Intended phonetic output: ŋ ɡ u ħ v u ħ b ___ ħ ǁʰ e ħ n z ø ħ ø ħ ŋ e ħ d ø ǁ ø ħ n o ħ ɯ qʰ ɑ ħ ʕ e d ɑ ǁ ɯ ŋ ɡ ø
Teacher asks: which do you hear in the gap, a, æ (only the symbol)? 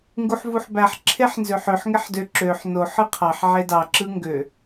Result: æ